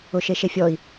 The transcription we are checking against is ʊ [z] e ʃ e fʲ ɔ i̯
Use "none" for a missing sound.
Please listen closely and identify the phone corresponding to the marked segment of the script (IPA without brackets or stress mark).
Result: ʃ